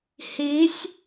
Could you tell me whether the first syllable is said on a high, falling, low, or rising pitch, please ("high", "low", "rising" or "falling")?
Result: rising